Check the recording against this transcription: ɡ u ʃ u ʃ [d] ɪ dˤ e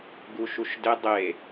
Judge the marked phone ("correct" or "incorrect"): correct